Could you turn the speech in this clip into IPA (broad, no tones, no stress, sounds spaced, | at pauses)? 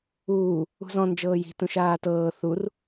uː | ṳ z ɔ̃ n d͡ʒ ɤː j i̤ t ũ ʃ aː t ɤː θ u r